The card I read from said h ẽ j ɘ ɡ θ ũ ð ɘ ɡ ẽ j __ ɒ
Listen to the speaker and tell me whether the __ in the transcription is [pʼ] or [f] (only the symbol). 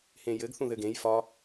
f